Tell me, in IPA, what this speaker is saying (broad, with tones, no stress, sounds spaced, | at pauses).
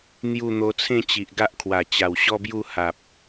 n̪ j u˥˧ n̪ o˧ t͡sʰ ẽ˥˧ t͡ɕ i˨ ʔ ɡ a˦ ʔ kʰ w a˨˩ t͡ɕ a˨˩ w ɕ ɔ˦ b j u˥˧ h a˨ p̚